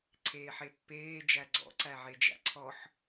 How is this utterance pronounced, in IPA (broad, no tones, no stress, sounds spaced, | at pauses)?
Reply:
ǀʰ eː ħ e pː eː d͡ʒ æ ɡ͡ǀ ɔ̰ ǀ æ ʕ e d͡ʒ æ̰ ǀʰ ɔ ħ